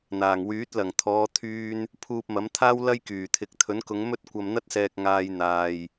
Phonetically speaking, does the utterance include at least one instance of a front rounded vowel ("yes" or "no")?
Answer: yes